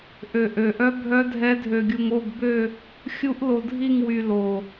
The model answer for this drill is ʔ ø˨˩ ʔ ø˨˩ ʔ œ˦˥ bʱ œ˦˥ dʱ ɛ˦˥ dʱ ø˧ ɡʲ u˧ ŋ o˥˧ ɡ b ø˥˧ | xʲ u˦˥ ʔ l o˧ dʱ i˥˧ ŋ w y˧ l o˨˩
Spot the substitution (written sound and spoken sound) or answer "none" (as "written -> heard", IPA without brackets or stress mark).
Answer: none